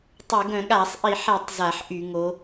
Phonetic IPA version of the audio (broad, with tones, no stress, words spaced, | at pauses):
tˤɛ˧˩˧ ɡœ̃˧˩˧ɠa˧˩˧sˤ ʔi˧˩˧ħɛ˧˩˧tˤ za˧˩˧ħʔy˧˩˧ ŋo˨˦